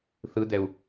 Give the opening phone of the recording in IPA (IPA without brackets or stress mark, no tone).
θ